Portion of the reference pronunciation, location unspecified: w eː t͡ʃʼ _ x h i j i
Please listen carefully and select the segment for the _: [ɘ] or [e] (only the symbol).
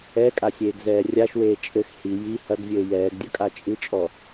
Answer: ɘ